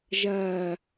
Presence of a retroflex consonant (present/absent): absent